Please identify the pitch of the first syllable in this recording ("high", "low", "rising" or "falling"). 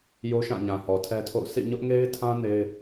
high